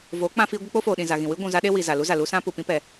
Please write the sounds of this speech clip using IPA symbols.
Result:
v oː˨˦ k͡p ã˧ f iː˧ ɡʷ ɨ˧ k͡p o˦ f oː˨ ɗ ĩ˨ z a˨ ɣ ĩ˨ w ɨ˦ ɡʷ ũ˨ z a˧ ɗ e˦ w i˨ z a˨ l u˦ z a˨ l u˧ s ã˧ p u˨ p ĩ˧ p ɛ˨

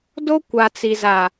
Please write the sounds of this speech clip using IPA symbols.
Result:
d o˦ kʷ a˨ t͡s i˨ z a˨

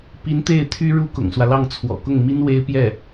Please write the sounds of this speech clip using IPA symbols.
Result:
p i˧˥ n t̪ e˥˩ ɪ̯ t̪ʰ y˥ ɻ u˥ k ʊ̰˨˩ ŋ s w ä˦ l ɑ˥˩ ŋ t͡sʰ w ɔ̰˨˩ k ʊ˥˩ ŋ m i˥ n w e˥ ɪ̯ p j ɛ˥˩

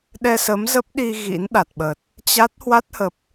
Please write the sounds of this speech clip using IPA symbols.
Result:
ɗ ɛ˧ s ə˨˦ m z ə˦˥ p̚ ɗ i˧ ɣ ḭ˧˥ n ɗ a˨˩ t̚ ɓ ə˨˩ t̚ | t͡ɕ a˦˥ t̚ h w a˦˥ t̚ h ə˨˩ p̚

